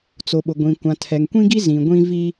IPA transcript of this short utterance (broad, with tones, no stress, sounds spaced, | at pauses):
t͡s o˨ ɓ ʊ˨ ɡʷ ĩ˨ kʷ ã˨ tʰ ɛ˨ ŋ kʷ ĩ˦ ɡ i˦ z ĩ˨ ɡʷ ĩ˦ v i˦